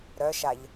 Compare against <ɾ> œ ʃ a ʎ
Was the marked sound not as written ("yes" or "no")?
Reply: no